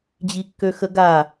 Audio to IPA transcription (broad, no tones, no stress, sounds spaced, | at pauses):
d͡ʑ i kː ø x ə ɡ a